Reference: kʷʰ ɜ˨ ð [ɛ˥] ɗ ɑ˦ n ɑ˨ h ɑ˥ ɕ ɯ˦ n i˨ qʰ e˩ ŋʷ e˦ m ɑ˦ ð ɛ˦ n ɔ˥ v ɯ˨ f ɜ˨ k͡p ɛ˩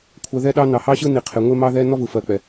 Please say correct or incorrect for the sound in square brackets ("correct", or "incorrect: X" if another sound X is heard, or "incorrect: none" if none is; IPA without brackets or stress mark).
incorrect: ɛ˦